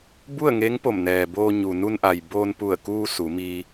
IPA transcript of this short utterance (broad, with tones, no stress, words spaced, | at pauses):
bu˥˨ə̯ŋe˧˥ŋ po˧˩mnɛː˩boː˧ ɲu˩ nu˧nʔa˩j boː˧npu˧˩ə̯kuː˧ su˩˧ mi˧